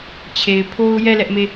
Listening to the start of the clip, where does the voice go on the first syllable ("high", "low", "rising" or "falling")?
low